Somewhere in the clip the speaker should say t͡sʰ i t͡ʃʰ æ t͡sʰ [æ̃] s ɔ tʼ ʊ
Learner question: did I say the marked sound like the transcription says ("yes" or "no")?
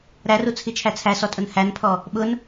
no